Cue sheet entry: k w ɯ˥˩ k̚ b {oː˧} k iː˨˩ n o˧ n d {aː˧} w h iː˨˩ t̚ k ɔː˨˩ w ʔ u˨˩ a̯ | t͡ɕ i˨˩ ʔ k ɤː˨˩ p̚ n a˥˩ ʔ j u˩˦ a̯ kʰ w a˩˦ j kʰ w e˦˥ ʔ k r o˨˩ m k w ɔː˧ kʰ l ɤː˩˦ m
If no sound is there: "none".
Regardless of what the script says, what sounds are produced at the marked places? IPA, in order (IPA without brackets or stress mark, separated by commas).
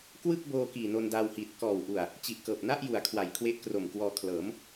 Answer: oː˧, aː˧